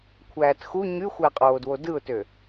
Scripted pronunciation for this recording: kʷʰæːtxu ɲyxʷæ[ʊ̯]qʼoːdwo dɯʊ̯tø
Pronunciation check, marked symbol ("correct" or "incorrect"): incorrect